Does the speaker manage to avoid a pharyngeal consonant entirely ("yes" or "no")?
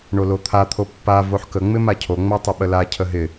no